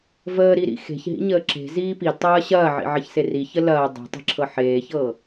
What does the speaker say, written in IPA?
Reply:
vəːɾiɾḭ xe̤çɦḭɲəː ǁe̤ziː pidtˤɐː ɕɐːʕḭʕɐçse riçə lɐː dˤe̤tˤe̤ǁʰɤ ħeːçɤ

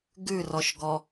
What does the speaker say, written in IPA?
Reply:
ɡʉrɔʃɡɔ

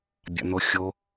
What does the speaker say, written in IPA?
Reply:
bʲa̰n̪oxʲo

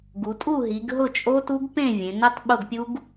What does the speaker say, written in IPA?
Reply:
ɡu˩˧tʼu˥˨ɦi˩˧ɡ ɦʊ˥˨t͡ʃʼo˦˥tu˦˥ɡ pẽ˥˨ vʲẽ˩˧nʊ˦˥tˤ ɓʊ˥˨ɡpʲu˦˥ɡ

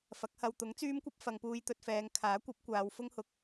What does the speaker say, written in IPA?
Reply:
fɐ˨˥k̚hɐ˧w t̪ʊ˨˥ŋt͡syː˥mkʷɐ˥p̚ fɐ˨ŋpuː˧jt̪ɵ˧t̚fɛː˨˧ŋ kʰaː˨˥kʷɐ˨˥p̚kʷaː˨˧w fʊ˥ŋhʊ˨k̚

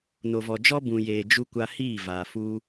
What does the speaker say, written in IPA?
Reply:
no˨vɔ˨d͡ʒɔ˦ bũ˨jeː˨ d͡ʒu˧kʷa˧hiː˦˨ vaː˨fu˦

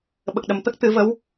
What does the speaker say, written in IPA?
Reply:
ɓə˨˩k̚ɗə˨˩mt̪ə˦˥k̚ t̪ɨ˨˩˦və˧˥w

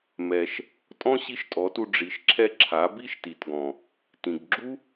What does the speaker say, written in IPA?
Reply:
mɛ˩ʃ | tʼɔ̃˥ɕi˧˥ʃtʼɔ˩˧tu˧ ɖ͡ʐi˩˧ʃǁʰɛ˧ǁʰa˩˧ bi˥ʃti˩tɡɔ̃˩ | tĩ˩ɡɡ͡ǁu˥

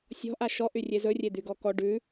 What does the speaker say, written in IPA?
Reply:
sʲɔ̤ʔa ʃɔʔy rʲezɵrʲe d̪yɡɔkɔ ɖʉ

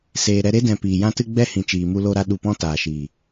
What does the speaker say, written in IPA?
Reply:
seː˨ ɾɛ˧ɾe˦dɛ̃˨ piː˨jã˦tɨ˦ɡ͡bɛ˦ hĩ˨t͡ʃiː˨mu˧ lo˦ɾa˦ ɗu˧pɔ̃˦taː˨ʃiː˨

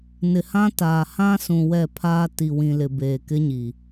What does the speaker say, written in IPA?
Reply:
nɪ˨hã˦taː˨ hã˦sũ˨ wɛ˦˨pʰaː˦ ti˨ wĩ˨lɪ˨ beː˨kɪ˦ɲi˨

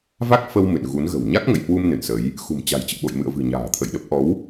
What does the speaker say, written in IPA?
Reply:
va˦˥k̚fə˧w mɨ̰˧˨nɣu˨˦nɣə̤˨˩w ɲa˦˥k̚ŋə̰˧˨jhwu˧m nɨ̰˧˨nsə˨˦j | xṳ˨˩mt͡ɕa̤˨˩jt͡ɕɨ̰˧˨ɓo̰˧˨j mɨ̰˧˨ə̯vɨ̤˨˩ ɲa̤ː˨˩t̪ʰə̰˧˨jɗə˦˥p̚ ʔɔ˨˦w

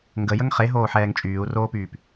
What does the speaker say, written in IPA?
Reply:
ŋɡəjəŋ χeɦoːħɛːŋ t͡ʃʼyːu̯roːpyːp

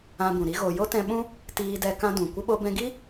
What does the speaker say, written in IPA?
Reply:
ã˧bũ˨ ɾi˦ɣo˧ jo˦tɛ̃˧ɓũ˦ | tiː˧dɛ˧ kã˦dũ˨ kʷə˧ɓo˧bɛ̃˧ɡi˦

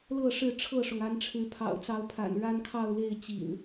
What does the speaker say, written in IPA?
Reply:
lɤ˥˨ʂɻ̩˥˨ ʈ͡ʂʰɤ˥˨ʂʊ˩ŋ a˨˦nʈ͡ʂʰɻ̩˨˦pʰɑ̰˨˩ʊ̯t͡sɑ˨˦ʊ̯ pʰa̰˨˩n ɻa˦nkʰɑ˥˨ʊ̯le˥˨ɪ̯ t͡ɕḭ˨˩n

